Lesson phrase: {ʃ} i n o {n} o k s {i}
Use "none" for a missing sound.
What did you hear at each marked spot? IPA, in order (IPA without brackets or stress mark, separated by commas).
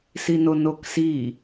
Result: s, n, i